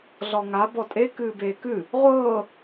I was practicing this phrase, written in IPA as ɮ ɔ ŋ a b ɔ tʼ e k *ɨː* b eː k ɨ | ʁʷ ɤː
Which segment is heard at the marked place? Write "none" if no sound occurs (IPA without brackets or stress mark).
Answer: ɨː